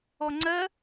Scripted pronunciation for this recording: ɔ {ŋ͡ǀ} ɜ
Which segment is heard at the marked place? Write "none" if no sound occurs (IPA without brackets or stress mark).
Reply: ŋ͡ǀ